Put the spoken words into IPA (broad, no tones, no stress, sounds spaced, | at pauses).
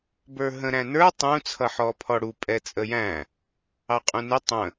b ə˞ ɦ ə̃ ɾ æ̃ n ə˞ tˤ ũ t͡sʰ ʌ ħ ɔ pʰ ɔ ɽ u pʼ ɛ t͡sʼ ə j æ̃ | ɑ qʼ ũ n ɪ tˤ ə̃